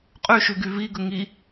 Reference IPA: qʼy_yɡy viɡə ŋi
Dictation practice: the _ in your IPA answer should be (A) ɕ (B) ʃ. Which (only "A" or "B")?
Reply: B